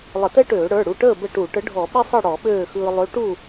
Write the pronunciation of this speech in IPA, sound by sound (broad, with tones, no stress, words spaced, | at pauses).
lˠə˧˩˧tɛ˥ʈøː˧˩˧ ɽə˞˩˧˩ɽu˩˧˩ʈəː˥˨ bə˥˨ ʈu˧˩˧ ʈə˨˥ɖʱɔ˧˩˧ ɓi˥sˤɯ˥˨ ɽɔ˧˩˧ɓøː˥˨xɯː˧ lˠø˨˥ ʈu˥˨